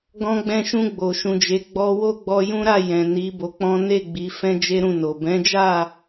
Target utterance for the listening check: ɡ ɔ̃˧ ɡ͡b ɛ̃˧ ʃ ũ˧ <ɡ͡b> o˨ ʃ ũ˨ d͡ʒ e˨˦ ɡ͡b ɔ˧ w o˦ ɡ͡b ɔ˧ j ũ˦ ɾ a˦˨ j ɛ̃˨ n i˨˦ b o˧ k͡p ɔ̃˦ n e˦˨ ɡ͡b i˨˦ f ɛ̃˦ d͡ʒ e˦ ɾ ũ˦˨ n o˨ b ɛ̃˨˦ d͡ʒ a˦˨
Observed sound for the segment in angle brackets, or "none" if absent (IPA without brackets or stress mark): ɡ͡b